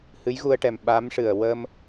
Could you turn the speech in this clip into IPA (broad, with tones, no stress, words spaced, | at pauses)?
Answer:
hɨ˧˥jɣu˧ə̯ʈɛ˨˩m ɓa˧˥mʂɨ˨˩ə̯ wə˧m